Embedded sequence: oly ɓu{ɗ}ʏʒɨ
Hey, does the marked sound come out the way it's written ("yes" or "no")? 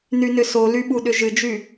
yes